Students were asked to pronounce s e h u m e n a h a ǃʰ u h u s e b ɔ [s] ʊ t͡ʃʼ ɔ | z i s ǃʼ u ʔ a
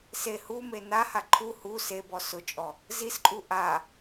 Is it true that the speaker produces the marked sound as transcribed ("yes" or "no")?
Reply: yes